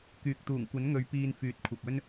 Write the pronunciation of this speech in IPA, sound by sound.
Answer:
k yː˨ k̚ t̪ uː˨˩ ŋ kʷ ɐ˨˥ n ŋ ɵ˨˧ ɥ p iː˧ n f yː˨˥ t̚ kʷʰ ɐ˨ p̚ ɵ˥ n

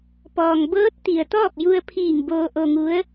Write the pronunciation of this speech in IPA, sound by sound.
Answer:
p ɔː˩ ŋ b ɤː˧˥ t̚ t̪ i˩ ə̯ t̪ ɔː˥˨ p̚ j u˧ ə̯ pʰ iː˧˩ ŋ b oː˧ ʔ o˧ ŋ u˧˥ ə̯

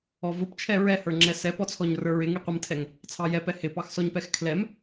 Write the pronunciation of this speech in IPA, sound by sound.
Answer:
ɔ v ʊ p t͡ʃʰ ɛ ɹ ɛ h ə˞ ŋ͡ǁ ɛ s ɛ p ɔ t͡sʰ ɔ ɲ r ə˞ ɹ ɪ ŋ i qʷ ə m tʰ ɛ ŋ | t͡sʰ ɑ j ɛ p ɛ h ɪ p ɑ x s ɔ ɲ p ɛ x kʰ l ɛ m

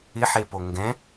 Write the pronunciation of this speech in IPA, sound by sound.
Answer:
ɪ ħ e p o ŋ ɡ ɛ̃

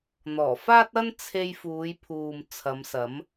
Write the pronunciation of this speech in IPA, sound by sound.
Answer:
n̪ ɔː˨˩ f aː˥ t̚ ɐ˥ n t͡sʰ e˧ j f uː˨˧ j pʰ uː˨ m t͡sʰ ɐ˨˧ m s ɐ˨˥ m

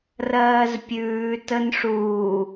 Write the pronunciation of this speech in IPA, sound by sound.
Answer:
r ɜː z pʲ ʉː t ə n ʂ uː

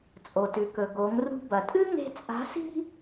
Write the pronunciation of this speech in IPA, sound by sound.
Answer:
t͡sʼ o˩ t ʉ˩ k ɵ˩ ɡ o˩˧ ŋ r ṳ˧ b ɐ˩ tʼ ɨ˥ ŋ e̤˥ t͡sʼ a̤˧˥ s i̤˥

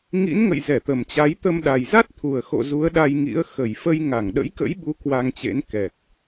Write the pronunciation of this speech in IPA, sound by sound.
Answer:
ŋ ḭ˧˥ n ŋ ə̰˧˨ j z ɛ˧˩ t̪ ə˨˩ m t͡ɕ a˨˦ j t̪ ə˧ m ɗ a˨˩ j z a˦˥ t̚ t̪ʰ u˨˩ ə̯ x o̰˧˨ z u˨˦ ə̯ ɗ a˧ j ŋ ḭ˧˥ ə̯ x ə˧˩ j f ə˧ j ŋ a˧˩ ŋ ɗ ə̰˧˥ j k ə̰˧˥ j ɓ u˨˦ k w a˧ ŋ t͡ɕ ḛ˧˥ n k ɛ˨˩ k̚

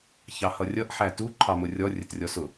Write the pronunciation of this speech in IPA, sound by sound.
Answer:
ç ɑ h ʌ rʲ ʌ ʔ ħ æ t u ǃʰ ɑ m ʊ rʲ ɔ rʲ ə t rʲ ɔ s ʊ

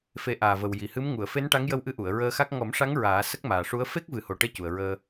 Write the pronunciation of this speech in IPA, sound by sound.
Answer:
f e˨˩˦ ʔ aː˨˩ v ə˨˩ w j i˨˩ h ɨ˧˥ m ŋ u˨˩˨ ə̯ f e˧˥ n ʈ a˧˥ ŋ j ə˧ w ʔ ɨ˧˥ ʔ u˨˩˨ ə̯ ɹ əː˧ x a˦˥ k̚ ŋ ɔ˨˩˦ m ʂ a˧˥ ŋ ɹ aː˨˩˦ s ə˦˥ k̚ m aː˨˩ ʂ u˧˥ ə̯ f e˦˥ k̚ v ɨ˨˩˦ h o˨˩ ʈ e˧ c u˨˩ ə̯ ɹ əː˧

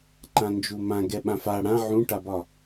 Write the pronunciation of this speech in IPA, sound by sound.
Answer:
ǃ ã n d͡ʒ u m ã ɡ ɛ ɓ ã f a ɽ ã ʕ ũ ʈ a b ɒ

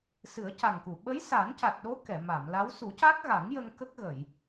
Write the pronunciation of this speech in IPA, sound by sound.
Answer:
s ɨ˨˩˦ ə̯ c a˨˩ ŋ k u˨˩˨ ɓ ə˧˥ j s aː˨˩˦ n c a˨˩ t̚ ɗ o˧˥ k ɛ˨˩˨ m a˨˩˨ m l a˧˥ w s u˨˩˦ c a˦˥ k̚ ɣ a˨˩˦ ŋ j ə˧ ŋ k ə˦˥ k̚ ɣ ə˨˩˨ j

